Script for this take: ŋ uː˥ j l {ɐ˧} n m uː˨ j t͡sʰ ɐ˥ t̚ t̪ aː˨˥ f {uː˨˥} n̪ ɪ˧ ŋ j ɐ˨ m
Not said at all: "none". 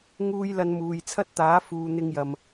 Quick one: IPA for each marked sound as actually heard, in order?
ɐ˧, uː˨

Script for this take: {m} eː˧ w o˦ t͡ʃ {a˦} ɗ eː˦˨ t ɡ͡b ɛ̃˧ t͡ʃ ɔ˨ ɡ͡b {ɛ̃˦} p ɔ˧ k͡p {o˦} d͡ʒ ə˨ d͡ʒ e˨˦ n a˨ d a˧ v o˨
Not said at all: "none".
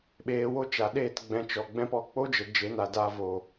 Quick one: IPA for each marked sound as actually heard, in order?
ɓ, a˨, ɛ̃˧, o˦

